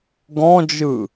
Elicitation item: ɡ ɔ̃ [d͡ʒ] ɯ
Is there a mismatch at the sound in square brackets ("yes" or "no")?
no